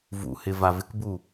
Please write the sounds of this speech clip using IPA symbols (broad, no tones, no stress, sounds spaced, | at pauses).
v ṵ h ɪ v a v ɪ k b u